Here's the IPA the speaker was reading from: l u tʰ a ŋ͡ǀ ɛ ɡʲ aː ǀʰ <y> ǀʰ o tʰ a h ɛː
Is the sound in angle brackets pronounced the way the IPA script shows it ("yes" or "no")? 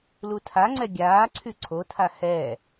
yes